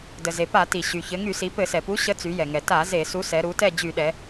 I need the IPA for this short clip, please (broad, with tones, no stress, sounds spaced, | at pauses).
d ə˩ z e˩ p a˧˩˧ t i˩ ɕ y˩ ç ɘ˩˧ ŋ y˧˩˧ s i˩˧ p ɘ˧˩˧ s ɛ˩ p u˨˥ ɕ ə˨˥ t͡s y˩˧ j ɛ˩ ŋ ɛ˩ t a˧˩˧ z e˧˩˧ s u˨˥ s ɛ˩˧ ɾ u˩˧ t ɛ˦˨ d͡ʑ y˧˩˧ ɗ ɛ˩˧